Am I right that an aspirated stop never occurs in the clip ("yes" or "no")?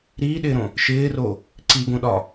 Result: yes